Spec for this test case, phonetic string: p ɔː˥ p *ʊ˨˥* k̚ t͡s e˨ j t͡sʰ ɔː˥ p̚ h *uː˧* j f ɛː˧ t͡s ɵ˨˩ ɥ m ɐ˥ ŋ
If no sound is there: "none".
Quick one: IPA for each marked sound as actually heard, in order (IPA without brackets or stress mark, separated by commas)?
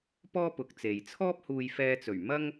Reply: ʊ˨˥, uː˧